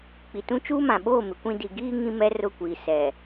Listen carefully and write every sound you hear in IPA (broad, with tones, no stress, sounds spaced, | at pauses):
k͡p i˨ t ũ˦ t͡ʃ uː˦ m ã˨ ɓ oː˦˨ m ɪ˨˦ kʷ ĩ˦ d i˨ ɡ iː˦ ŋ ĩ˦ m ɛ˦ r ʊ˦˨ kʷ iː˨ s ɛ˨